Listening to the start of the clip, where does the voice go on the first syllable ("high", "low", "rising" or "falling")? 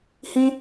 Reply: high